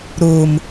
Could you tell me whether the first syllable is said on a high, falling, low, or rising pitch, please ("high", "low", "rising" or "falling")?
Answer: low